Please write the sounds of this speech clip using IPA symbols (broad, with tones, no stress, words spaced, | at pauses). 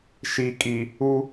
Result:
ʃi˨kʼi˨ | u˦